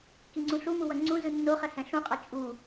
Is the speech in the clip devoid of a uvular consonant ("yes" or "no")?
no